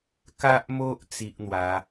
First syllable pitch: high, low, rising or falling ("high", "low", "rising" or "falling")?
high